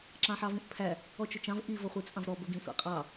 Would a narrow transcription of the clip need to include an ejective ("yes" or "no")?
yes